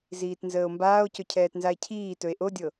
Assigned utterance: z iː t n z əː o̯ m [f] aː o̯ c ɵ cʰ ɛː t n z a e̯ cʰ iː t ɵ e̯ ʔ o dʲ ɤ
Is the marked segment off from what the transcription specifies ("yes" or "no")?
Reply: yes